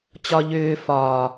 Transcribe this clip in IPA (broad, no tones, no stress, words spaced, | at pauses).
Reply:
t͡ɕɒʎʏː fɒː